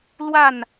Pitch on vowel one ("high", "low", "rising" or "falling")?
falling